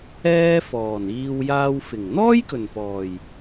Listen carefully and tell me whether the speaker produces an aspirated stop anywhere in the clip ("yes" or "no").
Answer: no